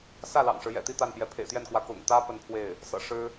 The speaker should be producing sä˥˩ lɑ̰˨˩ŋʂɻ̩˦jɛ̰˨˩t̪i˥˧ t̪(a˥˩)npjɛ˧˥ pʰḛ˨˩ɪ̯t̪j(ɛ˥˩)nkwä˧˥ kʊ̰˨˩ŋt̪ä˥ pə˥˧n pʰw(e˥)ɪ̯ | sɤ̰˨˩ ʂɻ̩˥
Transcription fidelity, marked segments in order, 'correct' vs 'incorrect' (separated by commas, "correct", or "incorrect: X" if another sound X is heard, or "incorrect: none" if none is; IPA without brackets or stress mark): correct, correct, incorrect: e˥˩